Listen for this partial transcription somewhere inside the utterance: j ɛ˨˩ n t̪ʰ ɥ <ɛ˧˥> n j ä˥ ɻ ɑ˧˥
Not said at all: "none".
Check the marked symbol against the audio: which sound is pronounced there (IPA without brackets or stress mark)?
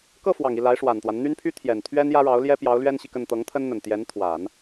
ɛ˥